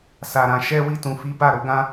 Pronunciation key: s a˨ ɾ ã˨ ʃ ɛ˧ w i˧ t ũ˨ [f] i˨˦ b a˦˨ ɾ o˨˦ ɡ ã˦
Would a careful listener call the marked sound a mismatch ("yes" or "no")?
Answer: no